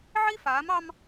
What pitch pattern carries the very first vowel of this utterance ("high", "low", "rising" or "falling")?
high